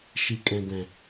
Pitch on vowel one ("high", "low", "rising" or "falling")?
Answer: low